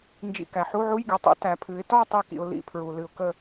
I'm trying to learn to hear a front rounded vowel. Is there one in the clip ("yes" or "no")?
no